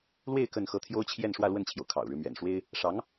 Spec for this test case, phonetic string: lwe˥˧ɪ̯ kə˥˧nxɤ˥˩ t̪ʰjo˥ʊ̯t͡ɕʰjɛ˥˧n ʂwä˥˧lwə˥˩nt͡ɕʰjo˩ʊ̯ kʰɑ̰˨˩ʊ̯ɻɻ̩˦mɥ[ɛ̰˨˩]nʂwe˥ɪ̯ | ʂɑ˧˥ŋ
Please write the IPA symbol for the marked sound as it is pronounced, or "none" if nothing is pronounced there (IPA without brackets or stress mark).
ɛ̰˨˩